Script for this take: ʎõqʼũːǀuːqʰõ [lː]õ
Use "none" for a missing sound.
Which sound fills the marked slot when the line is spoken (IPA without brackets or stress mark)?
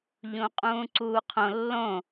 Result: lː